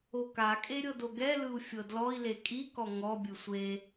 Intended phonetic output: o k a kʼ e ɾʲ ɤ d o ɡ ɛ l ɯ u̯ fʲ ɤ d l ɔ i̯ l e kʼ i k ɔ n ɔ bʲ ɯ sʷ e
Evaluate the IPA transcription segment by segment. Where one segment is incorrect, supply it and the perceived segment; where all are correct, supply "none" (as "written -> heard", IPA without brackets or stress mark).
n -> ŋ